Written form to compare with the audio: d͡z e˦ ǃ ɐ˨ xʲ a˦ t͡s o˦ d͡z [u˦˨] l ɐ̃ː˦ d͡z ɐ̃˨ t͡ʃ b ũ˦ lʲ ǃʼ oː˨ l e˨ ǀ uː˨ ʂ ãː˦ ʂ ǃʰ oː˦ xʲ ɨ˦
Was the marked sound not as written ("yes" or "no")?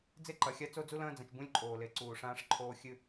yes